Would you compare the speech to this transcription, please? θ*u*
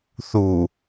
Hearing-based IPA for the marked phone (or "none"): u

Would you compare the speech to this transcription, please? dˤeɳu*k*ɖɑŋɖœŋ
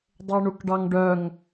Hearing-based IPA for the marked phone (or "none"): k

